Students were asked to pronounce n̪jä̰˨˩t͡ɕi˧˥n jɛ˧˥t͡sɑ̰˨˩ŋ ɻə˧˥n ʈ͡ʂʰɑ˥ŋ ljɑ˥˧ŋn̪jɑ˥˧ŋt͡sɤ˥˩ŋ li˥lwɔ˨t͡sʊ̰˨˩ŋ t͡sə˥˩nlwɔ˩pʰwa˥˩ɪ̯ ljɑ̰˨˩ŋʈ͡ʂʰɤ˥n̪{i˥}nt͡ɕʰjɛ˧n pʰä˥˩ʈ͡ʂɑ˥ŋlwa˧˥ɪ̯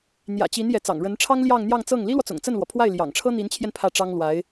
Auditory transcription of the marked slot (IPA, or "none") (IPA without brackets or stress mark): i˧˥